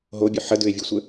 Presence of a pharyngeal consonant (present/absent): present